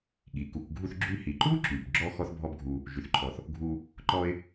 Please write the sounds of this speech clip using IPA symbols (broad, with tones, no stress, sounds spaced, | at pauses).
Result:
ɠ i˩ k u˨ k ɡʱ u˦ θ ɡ͡ǁ y˦ h i˩ ǃ u˥ ǁ y˩ b ɡ͡ǁ ɔ˥ x ɔ˦ θ bʱ ɔ˦ b ɡʱ u˨ | ʒ y˩ θ ǃʰ ɔ˩ θ | ɡʱ u˦ | ǃ ɔ˦ ɪ̯